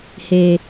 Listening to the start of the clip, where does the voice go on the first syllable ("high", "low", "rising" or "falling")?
low